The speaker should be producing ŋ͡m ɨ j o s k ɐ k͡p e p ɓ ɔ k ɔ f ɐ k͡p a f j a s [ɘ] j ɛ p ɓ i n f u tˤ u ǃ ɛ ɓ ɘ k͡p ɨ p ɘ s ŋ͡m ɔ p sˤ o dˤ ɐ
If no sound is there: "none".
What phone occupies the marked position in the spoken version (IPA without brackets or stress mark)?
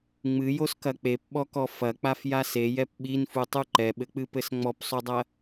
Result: e